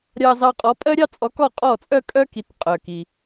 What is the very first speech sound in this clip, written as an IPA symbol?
ɾʲ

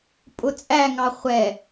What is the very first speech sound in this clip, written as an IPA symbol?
pʼ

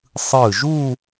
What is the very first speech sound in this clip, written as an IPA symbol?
sˤ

